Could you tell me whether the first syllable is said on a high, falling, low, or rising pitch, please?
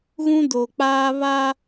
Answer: high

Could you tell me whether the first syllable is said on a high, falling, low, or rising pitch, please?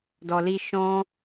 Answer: low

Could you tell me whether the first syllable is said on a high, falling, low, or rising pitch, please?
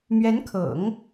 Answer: rising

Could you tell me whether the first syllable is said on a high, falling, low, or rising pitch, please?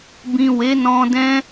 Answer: low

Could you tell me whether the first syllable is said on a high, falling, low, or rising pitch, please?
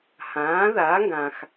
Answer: rising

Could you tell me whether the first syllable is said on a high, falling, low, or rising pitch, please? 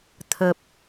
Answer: low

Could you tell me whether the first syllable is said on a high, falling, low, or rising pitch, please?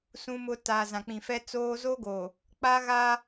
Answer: high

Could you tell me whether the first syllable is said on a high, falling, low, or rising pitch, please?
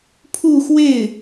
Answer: falling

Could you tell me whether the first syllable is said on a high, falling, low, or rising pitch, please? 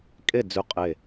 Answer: falling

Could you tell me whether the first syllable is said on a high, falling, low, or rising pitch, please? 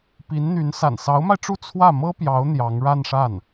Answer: rising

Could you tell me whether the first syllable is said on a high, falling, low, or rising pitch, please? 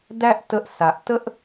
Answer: high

